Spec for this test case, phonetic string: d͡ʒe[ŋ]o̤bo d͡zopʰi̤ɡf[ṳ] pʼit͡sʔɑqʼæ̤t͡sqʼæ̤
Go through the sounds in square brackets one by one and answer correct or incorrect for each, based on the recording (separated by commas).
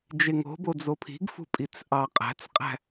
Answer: correct, correct